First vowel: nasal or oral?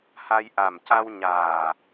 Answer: oral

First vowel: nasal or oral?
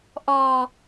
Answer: oral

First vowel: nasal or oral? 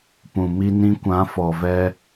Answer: nasal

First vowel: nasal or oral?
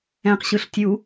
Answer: nasal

